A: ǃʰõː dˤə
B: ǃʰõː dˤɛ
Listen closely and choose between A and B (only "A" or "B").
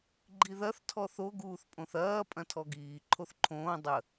A